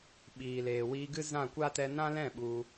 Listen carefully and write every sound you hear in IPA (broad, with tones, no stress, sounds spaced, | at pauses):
ɓ iː˨ l eː˨ w iː˧ ɡ ɨ˦ z ã˦˨ kʷ a˦ t ɛ˧ n ã˦ l ɛ̃˦˨ ɓ u˧